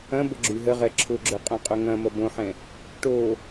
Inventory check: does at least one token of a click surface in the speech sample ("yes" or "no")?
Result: yes